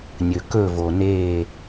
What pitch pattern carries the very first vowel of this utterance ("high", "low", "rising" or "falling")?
low